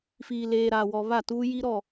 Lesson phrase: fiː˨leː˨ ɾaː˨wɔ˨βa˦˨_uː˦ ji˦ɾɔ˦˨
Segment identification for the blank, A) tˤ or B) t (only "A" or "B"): B